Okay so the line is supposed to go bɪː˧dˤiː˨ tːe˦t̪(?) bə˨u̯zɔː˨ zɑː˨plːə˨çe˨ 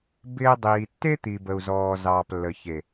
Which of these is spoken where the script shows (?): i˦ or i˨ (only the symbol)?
i˨